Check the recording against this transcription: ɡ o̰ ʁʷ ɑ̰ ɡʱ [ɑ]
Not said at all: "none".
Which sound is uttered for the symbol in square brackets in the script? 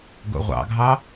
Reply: ɑ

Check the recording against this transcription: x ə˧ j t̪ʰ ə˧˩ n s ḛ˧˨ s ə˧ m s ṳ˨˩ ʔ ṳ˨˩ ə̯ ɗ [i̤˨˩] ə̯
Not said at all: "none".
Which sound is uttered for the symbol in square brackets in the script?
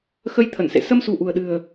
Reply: ɨ̤˨˩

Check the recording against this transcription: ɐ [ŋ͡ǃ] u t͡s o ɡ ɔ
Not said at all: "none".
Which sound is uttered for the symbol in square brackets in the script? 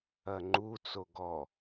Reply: ŋ͡ǃ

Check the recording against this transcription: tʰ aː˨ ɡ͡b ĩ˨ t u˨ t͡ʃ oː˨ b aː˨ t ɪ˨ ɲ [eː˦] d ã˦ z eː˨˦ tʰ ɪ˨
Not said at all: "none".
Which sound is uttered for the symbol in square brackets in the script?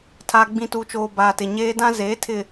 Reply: eː˦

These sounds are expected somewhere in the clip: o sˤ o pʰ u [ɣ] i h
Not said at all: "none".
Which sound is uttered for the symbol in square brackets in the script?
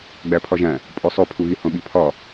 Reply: ɣ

